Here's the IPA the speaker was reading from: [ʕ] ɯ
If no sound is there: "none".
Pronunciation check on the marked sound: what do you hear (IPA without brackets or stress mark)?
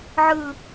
ʕ